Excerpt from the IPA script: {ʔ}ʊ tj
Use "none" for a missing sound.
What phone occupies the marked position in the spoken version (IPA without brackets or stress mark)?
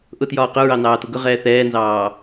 ʔ